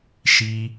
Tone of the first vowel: low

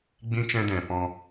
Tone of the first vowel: high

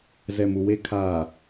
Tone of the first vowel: low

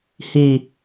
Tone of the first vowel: low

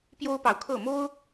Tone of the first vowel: high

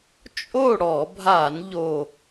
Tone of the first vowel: falling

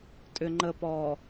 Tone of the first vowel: low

